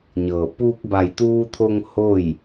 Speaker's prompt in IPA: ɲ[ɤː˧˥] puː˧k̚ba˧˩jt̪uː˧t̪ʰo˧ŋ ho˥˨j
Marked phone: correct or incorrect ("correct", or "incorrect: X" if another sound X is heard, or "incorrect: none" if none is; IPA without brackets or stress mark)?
incorrect: ɤː˧˩